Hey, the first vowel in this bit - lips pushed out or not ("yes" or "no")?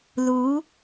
yes